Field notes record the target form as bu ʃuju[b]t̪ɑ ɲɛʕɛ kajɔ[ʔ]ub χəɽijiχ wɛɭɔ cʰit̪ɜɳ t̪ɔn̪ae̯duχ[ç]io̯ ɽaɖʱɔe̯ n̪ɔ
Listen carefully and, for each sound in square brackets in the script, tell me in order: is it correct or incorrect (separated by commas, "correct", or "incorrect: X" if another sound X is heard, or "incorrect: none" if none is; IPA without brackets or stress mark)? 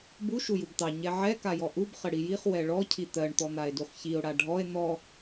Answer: correct, correct, correct